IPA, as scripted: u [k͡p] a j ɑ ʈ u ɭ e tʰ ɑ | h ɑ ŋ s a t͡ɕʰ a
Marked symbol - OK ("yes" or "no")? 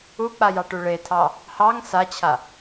yes